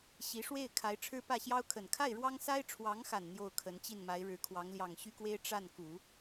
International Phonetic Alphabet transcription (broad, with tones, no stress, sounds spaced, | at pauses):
ɕ i˧˥ ʂ w e˥˩ ɪ̯ kʰ a˧˥ ɪ̯ ʈ͡ʂʰ ɻ̩˥ p ä˥˩ ɕ j ɑ˥ ʊ̯ kʰ ə˨˩ n kʰ a˥˩ ɪ̯ ɻ w ɑ˥ ŋ s a˥ ɪ̯ ʈ͡ʂʰ w ɑ˧˥ ŋ x a˨˩ n n̪ j o˥˩ ʊ̯ kʰ ə˧˥ n t͡ɕ i˥˩ n m a˧˥ ɪ̯ ɻ ɻ̩˧˥ kʰ w ɑ˧˥ ŋ l j ɑ˨˩ ŋ ɕ y˥ k w e˥ ɪ̯ ʈ͡ʂ a˥˩ n k u˨˩˦